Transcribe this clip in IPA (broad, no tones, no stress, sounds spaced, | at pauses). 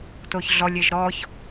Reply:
t o ç ɮ ɔ lʲ e ʒ ɾ ɔ ç